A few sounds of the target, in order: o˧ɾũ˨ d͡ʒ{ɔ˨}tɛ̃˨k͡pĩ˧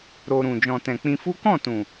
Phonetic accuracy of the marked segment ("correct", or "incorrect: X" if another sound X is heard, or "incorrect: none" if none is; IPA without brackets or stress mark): incorrect: ɔ̃˨